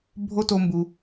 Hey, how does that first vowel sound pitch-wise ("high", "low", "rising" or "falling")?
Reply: high